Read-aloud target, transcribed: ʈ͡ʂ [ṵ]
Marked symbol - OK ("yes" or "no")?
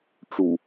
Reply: no